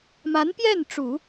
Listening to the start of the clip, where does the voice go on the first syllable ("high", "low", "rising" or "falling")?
rising